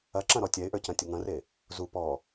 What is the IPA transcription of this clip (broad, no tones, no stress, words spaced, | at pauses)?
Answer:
ɐǁɐ̃ɾɔ tʲɛɪ̯ʔə˞cɐ̃tʲə˞ ŋɐ̃re | zu pɔ